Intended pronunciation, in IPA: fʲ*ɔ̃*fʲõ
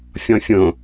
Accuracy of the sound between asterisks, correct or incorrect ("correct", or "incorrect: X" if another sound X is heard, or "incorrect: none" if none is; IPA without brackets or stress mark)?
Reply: correct